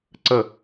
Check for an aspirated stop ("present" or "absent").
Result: absent